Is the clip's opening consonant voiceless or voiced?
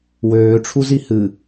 voiced